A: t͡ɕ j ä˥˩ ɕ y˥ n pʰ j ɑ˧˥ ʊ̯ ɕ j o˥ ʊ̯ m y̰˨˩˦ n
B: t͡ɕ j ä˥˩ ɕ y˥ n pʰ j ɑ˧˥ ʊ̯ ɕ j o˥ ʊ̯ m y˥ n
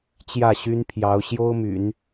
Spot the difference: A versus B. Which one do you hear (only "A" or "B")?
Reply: A